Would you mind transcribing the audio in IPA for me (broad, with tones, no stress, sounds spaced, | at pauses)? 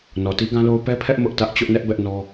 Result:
n ɔ˨ t i˦ ɡ ã˦ l o˦ ʊ̯ p ɛ˦ pʰ ɛ˦ ʔ m ʊ˦ ʔ t ä˦ ʔ t͡ɕ ʊ˦ ʔ n ɛ˦ ʔ b ɛ˦ ʔ n ɔ˦